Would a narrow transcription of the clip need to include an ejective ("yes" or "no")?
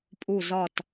yes